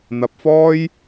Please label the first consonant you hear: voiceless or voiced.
voiced